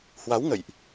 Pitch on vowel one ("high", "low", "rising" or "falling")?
rising